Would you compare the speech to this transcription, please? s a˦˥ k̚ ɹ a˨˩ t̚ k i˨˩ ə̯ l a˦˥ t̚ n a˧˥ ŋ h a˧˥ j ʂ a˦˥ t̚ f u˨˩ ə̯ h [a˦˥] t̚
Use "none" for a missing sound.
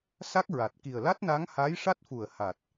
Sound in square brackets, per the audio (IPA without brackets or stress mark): a˨˩